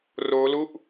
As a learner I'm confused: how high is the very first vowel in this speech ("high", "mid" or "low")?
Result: mid